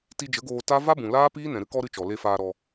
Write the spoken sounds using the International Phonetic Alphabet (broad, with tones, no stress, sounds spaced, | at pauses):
t i˧ d͡ʒ ə˨˦ ɡ oː˧ t a˦ v a˦ b ũ˨ l aː˦ p iː˦ n ɛ̃˨ ɾ ɨ˦ k ɔ˦ ɾ ɨ˧ t͡ʃ ɔ˨ l e˧ f aː˧ ɾ ɔ˧